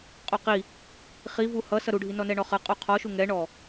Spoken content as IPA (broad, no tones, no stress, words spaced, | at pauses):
qʼoqi | χi vuhʌ sʌɾuɖʱi nɔnɛɳɔχʌ qʼuqʰɔʃu ŋɛɳɔ